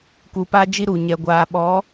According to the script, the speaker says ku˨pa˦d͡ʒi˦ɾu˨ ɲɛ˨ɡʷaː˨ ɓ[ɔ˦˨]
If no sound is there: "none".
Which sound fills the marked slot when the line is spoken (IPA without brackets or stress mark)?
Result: ɔ˨˦